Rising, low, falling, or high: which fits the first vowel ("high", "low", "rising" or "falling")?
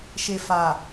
low